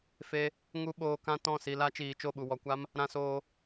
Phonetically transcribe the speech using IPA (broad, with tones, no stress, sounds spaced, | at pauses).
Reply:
f e˧ | ŋ u˧ ɓ oː˨ k ã˧ t ɔ̃˦˨ s i˧ l a˦ t͡ʃ iː˨ t͡ʃ o˦˨ ɓ u˨ w ɔ˨ kʷ a˦ m | ɾ ã˧ s oː˧